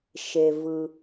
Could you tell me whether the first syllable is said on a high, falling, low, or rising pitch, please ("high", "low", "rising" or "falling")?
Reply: low